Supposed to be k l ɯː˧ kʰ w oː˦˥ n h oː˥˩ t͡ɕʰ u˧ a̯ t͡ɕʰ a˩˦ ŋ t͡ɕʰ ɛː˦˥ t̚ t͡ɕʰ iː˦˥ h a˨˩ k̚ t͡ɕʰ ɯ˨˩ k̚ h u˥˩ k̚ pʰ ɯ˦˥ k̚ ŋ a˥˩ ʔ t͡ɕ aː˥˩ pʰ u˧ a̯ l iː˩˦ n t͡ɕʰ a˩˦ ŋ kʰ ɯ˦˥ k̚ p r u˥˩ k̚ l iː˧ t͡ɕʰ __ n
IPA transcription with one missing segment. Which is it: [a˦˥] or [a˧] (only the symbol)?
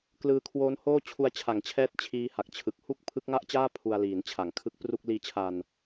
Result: a˧